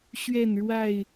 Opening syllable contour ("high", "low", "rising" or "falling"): falling